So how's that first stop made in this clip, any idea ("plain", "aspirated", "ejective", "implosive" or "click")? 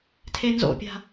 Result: aspirated